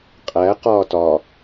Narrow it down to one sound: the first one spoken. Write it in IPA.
qʼ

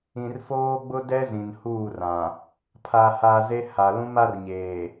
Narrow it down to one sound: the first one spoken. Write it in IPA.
ĩ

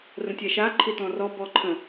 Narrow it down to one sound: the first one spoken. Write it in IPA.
r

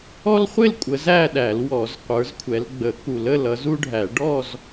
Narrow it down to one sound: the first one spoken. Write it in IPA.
ɔ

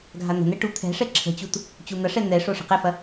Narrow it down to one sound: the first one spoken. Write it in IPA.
ɡʱ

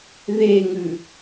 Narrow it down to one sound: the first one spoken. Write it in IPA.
ð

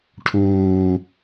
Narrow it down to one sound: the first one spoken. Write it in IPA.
ʈʰ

